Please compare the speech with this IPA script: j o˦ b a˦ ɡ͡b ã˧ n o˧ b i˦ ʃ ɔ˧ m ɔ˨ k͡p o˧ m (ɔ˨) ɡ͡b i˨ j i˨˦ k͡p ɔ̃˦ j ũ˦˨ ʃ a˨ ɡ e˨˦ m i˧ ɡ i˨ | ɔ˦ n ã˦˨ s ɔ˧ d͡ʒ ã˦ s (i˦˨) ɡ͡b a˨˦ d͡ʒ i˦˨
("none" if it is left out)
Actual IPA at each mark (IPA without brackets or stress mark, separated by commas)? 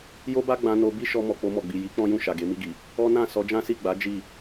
ɔ˨, i˦˨